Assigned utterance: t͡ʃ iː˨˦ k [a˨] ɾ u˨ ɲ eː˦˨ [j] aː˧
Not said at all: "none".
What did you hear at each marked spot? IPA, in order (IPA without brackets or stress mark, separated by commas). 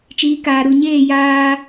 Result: aː˨, j